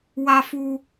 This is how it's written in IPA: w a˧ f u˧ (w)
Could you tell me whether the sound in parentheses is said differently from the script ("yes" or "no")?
yes